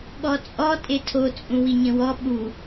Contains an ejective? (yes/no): yes